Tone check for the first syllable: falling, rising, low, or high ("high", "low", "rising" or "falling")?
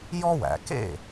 high